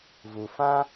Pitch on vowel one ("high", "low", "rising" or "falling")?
low